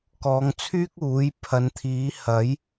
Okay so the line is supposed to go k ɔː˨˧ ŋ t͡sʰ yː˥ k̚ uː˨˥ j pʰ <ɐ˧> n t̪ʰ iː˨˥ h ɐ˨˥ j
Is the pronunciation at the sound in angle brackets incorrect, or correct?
incorrect